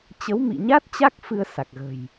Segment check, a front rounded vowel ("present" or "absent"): absent